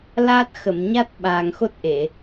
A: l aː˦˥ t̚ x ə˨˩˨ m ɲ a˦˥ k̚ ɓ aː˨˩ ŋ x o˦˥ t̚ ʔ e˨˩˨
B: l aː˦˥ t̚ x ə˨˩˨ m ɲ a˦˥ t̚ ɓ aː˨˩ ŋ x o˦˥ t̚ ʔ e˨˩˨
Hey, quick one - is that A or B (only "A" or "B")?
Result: B